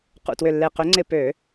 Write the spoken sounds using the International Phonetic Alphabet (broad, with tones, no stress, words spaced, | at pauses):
qṵ˧˩twʏ˧˩lːe˧˩ qʏ˨˦ŋ͡ǀɪ˧˩ pø˧˩˧